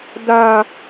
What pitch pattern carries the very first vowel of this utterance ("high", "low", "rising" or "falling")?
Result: high